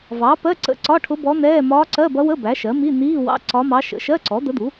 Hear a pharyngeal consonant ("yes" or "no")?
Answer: no